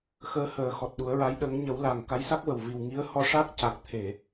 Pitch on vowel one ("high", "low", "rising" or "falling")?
rising